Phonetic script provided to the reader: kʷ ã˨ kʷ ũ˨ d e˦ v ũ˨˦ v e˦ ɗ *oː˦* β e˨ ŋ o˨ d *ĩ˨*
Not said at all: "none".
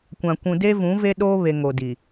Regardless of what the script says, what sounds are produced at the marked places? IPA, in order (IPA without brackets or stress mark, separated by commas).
oː˦, i˨